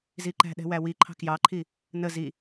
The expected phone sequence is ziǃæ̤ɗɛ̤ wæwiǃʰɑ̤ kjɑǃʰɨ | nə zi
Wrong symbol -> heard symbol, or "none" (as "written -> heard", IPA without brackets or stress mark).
ɨ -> i